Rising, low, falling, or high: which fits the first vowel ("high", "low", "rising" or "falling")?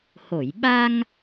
low